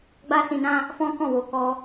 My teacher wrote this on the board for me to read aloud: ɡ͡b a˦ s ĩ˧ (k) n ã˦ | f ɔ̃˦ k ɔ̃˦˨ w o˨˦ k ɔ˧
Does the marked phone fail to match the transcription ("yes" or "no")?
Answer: yes